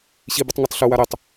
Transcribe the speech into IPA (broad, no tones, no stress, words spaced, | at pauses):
ɕibutˤŋotˤ ɬuwa ɾetˤ